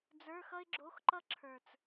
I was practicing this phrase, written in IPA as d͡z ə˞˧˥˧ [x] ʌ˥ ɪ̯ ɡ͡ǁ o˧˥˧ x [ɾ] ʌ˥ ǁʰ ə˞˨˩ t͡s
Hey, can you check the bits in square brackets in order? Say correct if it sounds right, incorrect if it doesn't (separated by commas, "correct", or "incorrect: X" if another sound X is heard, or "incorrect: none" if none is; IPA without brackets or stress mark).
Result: correct, incorrect: ǃ